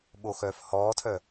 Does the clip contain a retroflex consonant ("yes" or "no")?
no